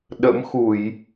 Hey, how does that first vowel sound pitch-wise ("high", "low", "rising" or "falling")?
rising